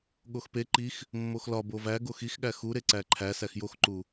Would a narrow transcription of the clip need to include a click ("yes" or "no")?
yes